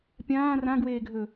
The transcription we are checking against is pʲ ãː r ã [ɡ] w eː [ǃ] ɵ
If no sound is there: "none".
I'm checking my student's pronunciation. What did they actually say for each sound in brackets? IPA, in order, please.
ɡ, ɡʱ

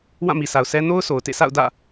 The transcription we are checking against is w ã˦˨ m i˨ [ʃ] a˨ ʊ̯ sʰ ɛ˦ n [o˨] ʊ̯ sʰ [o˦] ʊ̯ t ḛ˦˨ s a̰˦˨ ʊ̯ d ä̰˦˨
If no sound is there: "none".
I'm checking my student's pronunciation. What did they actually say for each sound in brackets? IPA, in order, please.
s, o˦, o˨

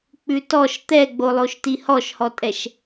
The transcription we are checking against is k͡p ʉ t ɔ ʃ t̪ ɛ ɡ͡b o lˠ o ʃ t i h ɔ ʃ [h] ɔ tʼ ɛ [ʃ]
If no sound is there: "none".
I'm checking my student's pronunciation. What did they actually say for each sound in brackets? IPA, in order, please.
h, ʃ

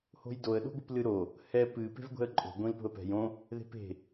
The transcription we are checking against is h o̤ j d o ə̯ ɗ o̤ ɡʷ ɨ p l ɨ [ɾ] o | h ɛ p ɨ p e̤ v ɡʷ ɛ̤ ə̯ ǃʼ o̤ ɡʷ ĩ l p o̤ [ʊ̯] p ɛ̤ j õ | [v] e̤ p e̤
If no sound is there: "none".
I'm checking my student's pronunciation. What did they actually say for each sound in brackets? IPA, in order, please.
ɾ, ə̯, ð

